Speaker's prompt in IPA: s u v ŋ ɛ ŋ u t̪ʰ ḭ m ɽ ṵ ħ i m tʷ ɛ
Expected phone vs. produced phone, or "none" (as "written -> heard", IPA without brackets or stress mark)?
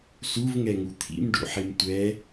ɽ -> ɖ